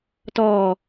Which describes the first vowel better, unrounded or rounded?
rounded